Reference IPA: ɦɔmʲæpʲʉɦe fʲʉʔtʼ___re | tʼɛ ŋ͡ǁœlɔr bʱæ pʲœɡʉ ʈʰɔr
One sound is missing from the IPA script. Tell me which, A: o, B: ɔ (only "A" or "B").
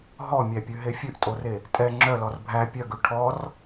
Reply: A